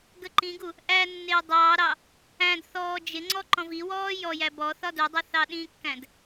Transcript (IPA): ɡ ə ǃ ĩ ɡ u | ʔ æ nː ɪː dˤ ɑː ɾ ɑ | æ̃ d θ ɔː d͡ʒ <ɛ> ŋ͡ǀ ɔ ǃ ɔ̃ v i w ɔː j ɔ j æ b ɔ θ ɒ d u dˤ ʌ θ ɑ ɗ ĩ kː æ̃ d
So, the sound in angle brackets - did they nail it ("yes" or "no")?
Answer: no